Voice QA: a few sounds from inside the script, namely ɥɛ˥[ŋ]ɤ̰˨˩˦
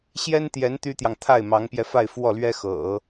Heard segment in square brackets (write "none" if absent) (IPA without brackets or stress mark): x